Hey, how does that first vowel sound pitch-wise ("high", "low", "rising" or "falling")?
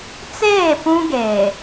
falling